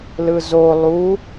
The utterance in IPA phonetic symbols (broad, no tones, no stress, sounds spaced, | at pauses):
l ɯ z o lˠ u